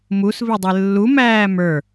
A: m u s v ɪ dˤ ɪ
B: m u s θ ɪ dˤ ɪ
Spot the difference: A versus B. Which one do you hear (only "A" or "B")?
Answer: A